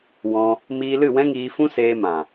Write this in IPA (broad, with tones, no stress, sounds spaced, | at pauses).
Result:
w ɔ̃˧ | m iː˧ l ɨ˦˨ w ɛ̃˦ ŋ iː˧ f ũ˦ s eː˧ m ã˨